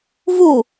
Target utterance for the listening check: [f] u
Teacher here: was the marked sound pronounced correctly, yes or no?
no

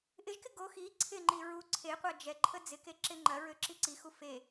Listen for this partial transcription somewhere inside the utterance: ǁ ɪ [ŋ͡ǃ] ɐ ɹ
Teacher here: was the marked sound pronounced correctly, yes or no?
yes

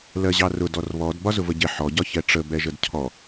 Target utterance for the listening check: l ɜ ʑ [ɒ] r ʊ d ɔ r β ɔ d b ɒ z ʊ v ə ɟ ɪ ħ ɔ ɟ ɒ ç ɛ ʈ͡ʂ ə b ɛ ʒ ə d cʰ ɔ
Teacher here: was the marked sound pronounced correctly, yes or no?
no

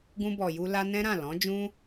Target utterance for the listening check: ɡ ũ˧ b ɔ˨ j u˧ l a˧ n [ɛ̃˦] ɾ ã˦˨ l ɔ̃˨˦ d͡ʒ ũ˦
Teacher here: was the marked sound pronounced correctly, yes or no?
yes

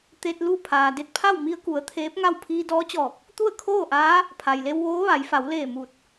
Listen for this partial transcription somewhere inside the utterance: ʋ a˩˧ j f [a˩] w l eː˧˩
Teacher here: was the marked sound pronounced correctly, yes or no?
no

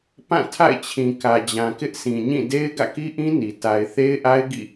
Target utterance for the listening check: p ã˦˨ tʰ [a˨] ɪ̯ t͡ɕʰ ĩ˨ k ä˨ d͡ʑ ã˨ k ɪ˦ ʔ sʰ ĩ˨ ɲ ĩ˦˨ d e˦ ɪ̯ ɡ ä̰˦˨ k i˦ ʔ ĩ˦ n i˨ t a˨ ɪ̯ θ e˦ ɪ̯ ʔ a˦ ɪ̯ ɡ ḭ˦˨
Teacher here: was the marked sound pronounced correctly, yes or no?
no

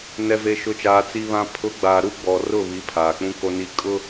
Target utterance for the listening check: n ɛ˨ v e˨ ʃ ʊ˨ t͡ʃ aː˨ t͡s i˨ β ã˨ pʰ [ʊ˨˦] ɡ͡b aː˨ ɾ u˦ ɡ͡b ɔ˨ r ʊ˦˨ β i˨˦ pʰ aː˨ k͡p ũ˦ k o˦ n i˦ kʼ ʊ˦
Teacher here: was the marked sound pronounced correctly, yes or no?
yes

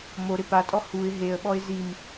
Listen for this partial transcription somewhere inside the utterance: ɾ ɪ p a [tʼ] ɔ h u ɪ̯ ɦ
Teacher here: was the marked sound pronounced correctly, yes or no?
yes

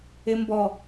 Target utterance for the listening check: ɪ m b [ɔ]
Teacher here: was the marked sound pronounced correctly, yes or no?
yes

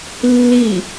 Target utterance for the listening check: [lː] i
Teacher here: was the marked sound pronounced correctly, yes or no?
yes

